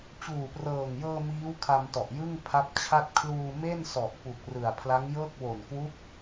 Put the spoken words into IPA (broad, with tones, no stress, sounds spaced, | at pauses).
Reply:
t͡ɕ uː˨˩ p r ɤː˨˩ ŋ j ɤː˧ m iː˦˥ w kʰ a˧ m t ɔ˨˩ ʔ j ɯ˥˩ ŋ pʰ a˦˥ p̚ t͡ɕʰ a˥˩ t̚ kʰ l uː˧ m e˥˩ n s ɔ˨˩ ʔ p u˨˩ k̚ r ɯ˨˩ a̯ pʰ l a˦˥ ŋ j ɤː˥˩ k̚ w o˨˩ n k w u˦˥ k̚